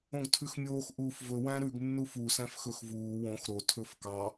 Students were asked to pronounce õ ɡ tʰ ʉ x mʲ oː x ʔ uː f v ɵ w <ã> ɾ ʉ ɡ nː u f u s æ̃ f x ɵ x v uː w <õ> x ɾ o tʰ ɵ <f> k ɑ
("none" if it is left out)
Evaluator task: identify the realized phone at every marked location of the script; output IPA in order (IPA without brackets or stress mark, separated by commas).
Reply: æ̃, õ, f